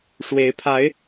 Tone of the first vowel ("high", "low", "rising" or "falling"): rising